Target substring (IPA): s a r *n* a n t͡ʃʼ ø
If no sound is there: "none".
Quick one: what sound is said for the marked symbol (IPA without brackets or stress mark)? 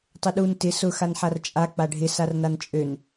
n